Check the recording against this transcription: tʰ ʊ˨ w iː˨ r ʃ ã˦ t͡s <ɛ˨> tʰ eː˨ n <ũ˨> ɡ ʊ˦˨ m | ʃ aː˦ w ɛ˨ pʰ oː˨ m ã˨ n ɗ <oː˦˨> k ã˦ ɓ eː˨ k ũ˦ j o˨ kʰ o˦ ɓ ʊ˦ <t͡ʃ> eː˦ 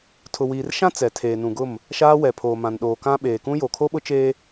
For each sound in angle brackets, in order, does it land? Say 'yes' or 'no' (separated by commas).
yes, yes, no, yes